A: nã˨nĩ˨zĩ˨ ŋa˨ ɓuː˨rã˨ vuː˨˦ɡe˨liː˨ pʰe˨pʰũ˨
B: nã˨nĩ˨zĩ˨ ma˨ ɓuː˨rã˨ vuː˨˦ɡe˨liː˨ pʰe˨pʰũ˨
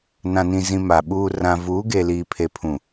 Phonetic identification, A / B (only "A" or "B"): B